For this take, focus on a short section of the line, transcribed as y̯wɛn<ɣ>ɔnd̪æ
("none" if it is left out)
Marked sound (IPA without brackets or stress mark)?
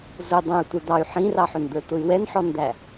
ħ